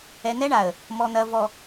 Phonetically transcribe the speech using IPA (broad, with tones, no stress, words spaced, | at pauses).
ɛ˨n̪ɛ˦ɳa˨ə̯ | mɔ˨n̪ɐ˨ vɔ˨